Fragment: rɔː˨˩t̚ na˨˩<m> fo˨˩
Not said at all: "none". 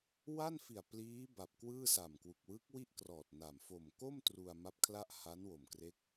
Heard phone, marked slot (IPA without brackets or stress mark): m